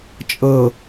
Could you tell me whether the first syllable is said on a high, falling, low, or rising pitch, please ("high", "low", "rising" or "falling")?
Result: low